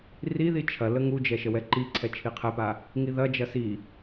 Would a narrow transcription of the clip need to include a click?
yes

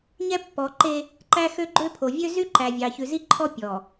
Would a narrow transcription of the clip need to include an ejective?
no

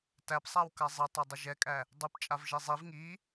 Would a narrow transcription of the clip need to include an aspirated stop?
no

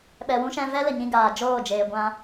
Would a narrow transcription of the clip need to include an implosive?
yes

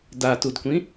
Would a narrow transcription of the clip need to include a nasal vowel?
yes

